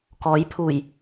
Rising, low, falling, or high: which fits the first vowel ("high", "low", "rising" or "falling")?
rising